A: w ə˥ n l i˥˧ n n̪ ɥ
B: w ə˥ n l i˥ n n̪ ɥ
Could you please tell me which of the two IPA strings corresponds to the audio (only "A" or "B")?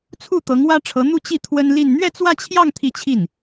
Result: A